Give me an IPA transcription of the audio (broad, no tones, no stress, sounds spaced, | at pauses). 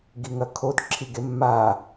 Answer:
ɡ i ŋ ɐ kʰ o d ǁʰ i ɡ e mː a